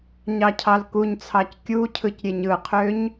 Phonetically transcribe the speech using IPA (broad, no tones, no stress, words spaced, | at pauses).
ɲɑcʰɑlkuɲt͡sʰɑc kʲucʰɯc ɾʲeɲɯqʰøɲ